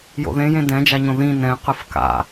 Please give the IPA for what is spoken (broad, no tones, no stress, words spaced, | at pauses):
jo̰ðẽjẽ dɛ̃d͡ʒaɲõ ðĩ nɛ̃qɯf ka̰